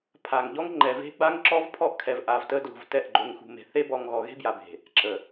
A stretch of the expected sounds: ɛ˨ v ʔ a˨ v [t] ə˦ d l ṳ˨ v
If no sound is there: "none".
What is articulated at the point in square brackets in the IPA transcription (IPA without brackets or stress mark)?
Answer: t